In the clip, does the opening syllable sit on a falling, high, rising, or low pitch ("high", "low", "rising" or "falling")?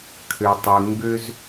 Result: low